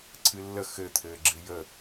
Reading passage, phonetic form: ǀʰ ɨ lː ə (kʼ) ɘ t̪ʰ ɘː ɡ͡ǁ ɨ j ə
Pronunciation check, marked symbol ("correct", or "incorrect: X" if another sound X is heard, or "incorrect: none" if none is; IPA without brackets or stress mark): incorrect: x